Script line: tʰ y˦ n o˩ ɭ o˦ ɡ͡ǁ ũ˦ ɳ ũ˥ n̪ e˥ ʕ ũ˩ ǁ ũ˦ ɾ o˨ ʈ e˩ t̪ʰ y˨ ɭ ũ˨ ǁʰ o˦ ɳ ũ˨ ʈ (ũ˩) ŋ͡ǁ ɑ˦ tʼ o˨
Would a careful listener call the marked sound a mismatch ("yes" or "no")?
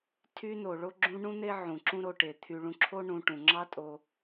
no